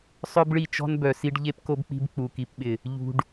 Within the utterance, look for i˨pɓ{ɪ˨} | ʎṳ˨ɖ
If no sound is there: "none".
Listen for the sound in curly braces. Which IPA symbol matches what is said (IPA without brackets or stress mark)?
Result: ɪ˨